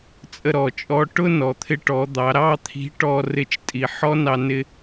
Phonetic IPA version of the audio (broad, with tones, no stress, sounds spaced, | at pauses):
t͡sʼ ə˧ ɾ ɔ˩ t͡ʃʼ ɔ˧˥ ʈ ʊ˥ n ɔ˩ t̪ʰ ɪ˧ ʈ ɔ˩˧ d̪ ɑ˩˧ ɾ ɑ˥ t̪ʰ i̤˧˥ ʈ ɔ˧ r ɪ˧ t͡ʃ tʼ i˩ ħ ɔ˥ n ɑ˧ n ɪ˧